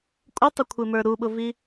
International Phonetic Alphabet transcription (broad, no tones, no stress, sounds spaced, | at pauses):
kʷʼ ɪ tˤ ə kʷʰ ɪ m ə˞ ɾ u ɓ ʊ v i